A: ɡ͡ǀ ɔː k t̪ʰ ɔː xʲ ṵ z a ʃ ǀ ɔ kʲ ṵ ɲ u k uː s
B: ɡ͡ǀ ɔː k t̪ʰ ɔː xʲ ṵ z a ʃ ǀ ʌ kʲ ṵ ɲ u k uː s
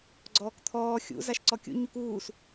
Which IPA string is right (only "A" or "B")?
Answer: A